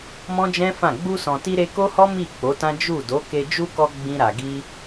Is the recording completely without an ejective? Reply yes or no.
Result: yes